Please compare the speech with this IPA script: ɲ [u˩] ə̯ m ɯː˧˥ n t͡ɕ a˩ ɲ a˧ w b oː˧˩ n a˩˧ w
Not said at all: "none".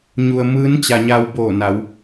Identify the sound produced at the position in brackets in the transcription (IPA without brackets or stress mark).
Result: u˩